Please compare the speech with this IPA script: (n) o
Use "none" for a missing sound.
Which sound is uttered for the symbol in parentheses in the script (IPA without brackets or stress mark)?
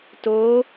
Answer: t